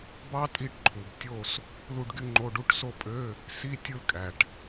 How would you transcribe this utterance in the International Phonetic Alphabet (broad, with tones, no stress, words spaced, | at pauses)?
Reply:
bɑ˥tʼi˥˩ʈǃʰu˨b tʲo˥˧s | lu˥˧ɖɡy˥ŋ͡ǃo˧˥˧ɖu˧˥˧ʈ so˥˧pʼø˧˥˧ | si˧˥˧ tʲɯ˥˧lkʼæ˨ʈ